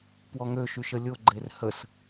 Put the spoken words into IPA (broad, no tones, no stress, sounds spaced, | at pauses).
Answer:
p w ɔ ŋ ø ʃ y ʃ ə lʲ o ɡ͡ǃ e r h ə s